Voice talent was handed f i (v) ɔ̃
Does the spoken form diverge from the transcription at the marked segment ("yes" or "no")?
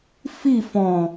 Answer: yes